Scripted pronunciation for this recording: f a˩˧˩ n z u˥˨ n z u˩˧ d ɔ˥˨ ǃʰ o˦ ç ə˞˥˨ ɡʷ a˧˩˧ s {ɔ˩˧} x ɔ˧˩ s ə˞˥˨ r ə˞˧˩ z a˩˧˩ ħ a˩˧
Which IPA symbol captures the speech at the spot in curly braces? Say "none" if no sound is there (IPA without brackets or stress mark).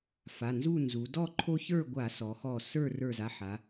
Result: ɔ˩˧